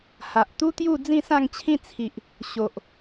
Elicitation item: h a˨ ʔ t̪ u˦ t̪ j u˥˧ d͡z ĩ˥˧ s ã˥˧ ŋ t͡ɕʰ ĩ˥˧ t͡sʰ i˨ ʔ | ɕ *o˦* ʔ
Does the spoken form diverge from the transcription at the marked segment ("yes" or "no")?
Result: yes